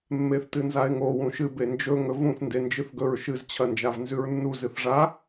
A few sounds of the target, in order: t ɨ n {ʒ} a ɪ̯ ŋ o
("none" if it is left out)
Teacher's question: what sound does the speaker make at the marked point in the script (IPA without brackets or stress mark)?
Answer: z